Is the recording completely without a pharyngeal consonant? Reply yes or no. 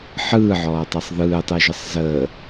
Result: no